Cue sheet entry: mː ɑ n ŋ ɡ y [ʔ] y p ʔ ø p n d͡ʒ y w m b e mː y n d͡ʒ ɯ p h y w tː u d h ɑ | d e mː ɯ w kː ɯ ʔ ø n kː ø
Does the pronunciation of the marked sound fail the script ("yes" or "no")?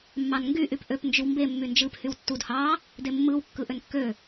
no